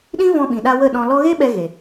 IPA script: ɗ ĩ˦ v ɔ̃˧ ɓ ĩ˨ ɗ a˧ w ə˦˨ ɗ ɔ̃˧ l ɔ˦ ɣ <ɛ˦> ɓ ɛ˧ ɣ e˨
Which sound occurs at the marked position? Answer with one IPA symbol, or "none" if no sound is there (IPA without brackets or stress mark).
e˦